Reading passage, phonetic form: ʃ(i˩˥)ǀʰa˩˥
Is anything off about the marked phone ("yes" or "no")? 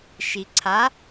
yes